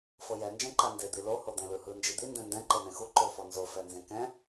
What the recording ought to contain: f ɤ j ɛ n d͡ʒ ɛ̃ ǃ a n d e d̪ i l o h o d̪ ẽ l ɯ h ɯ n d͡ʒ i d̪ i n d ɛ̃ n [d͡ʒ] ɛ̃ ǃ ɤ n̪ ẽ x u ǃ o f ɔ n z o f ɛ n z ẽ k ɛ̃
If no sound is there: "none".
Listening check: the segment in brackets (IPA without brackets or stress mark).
d